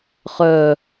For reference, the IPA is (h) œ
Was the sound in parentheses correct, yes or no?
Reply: no